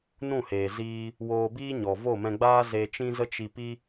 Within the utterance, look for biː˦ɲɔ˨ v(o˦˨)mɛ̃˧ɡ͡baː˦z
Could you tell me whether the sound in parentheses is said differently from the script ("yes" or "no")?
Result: no